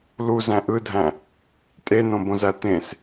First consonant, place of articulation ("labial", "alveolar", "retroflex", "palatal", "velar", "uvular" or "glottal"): alveolar